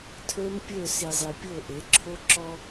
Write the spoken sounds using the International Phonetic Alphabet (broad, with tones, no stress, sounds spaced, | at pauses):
tʰ ə˞˦ m pʲ ə˞˦˨ s i˨ zˤ i˨ pʲ o˦˨ ʔ e˨˦ ǁʰ o˦ ǁ ɔ˦